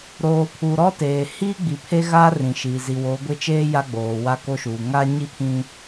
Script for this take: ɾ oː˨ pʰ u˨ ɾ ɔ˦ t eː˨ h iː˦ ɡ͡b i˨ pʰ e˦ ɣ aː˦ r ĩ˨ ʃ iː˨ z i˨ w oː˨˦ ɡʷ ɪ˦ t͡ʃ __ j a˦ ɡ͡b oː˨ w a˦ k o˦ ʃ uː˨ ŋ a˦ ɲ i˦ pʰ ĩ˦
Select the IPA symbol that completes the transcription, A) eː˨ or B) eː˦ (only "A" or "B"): B